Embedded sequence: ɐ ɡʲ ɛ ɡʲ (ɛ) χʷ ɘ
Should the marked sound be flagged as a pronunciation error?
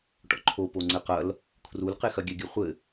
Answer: yes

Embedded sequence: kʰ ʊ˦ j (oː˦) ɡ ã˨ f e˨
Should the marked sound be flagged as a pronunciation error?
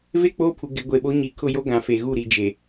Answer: yes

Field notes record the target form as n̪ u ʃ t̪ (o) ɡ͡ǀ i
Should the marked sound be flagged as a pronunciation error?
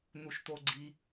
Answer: no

